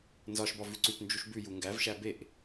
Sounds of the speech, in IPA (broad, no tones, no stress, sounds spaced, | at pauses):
n z ɒ ʃ b ɒ v ʉ ǀ ʉ p n d͡ʒ u ʃ b ʉ j u ŋ ɡ æ v ʃ æ b e ʔ